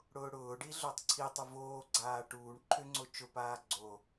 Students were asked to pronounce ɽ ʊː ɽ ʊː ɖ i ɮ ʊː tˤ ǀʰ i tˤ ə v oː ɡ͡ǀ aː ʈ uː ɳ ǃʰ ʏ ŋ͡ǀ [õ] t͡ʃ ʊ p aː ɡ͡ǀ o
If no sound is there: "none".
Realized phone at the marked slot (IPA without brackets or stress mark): o